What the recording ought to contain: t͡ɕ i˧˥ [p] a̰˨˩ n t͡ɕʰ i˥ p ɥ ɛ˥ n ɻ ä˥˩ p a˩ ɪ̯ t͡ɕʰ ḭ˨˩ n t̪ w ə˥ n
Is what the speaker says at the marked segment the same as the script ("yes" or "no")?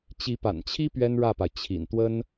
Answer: yes